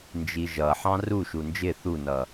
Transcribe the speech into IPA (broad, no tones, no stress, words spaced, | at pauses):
nd͡ʒiʒʌħɑ̃ ru ʃund͡ʒɪ θunʌ